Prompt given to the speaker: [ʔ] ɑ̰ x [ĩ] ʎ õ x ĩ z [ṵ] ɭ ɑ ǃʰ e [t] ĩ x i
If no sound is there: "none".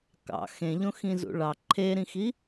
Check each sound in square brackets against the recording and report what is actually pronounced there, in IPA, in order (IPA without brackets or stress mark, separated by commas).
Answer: k, ẽ, ṵ, ɾ